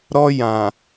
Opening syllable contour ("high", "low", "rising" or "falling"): high